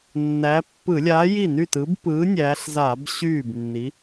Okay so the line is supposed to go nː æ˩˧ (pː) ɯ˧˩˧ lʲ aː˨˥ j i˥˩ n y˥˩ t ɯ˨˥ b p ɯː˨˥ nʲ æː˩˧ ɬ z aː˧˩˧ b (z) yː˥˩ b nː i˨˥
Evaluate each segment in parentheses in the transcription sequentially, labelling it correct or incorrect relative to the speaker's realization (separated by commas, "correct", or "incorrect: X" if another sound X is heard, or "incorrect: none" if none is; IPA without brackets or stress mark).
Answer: correct, incorrect: ɕ